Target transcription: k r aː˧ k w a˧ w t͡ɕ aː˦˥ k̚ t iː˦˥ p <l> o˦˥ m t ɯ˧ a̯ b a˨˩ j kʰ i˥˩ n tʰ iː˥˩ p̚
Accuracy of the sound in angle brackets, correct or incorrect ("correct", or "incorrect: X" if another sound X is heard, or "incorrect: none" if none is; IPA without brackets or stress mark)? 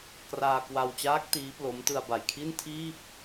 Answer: correct